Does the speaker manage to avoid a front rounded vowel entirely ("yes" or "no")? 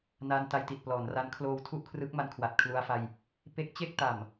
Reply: yes